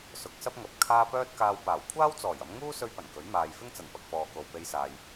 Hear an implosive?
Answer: no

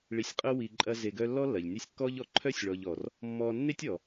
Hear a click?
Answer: yes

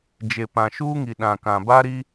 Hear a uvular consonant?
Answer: no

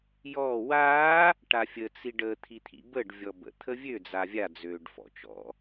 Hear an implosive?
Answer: no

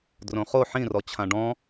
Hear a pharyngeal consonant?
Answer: yes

